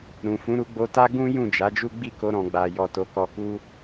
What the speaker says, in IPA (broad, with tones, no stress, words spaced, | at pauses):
ɾũ˨ fũ˨˦ɾu˧ɡ͡bo˧ta˦ ɡũ˦ jũ˦˨d͡ʒa˨˦d͡ʒu˦ ɡ͡bi˦˨ko˧ɾɔ̃˨ ɡ͡ba˨jɔ˨ to˨˦kɔ˧ku˦